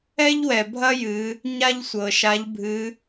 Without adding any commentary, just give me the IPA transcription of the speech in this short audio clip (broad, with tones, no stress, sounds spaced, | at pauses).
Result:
ɛ˥ ʎ w ɛ˩ bʱ ɐ˥ j ɨ˩˧ | ɲ a˥ ʎ sʷ ɤ˩ ʃ a˧˥ ʎ bʱ ɨ˧˥